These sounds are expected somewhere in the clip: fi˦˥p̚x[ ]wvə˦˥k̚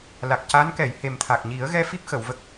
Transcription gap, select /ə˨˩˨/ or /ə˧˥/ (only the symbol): ə˨˩˨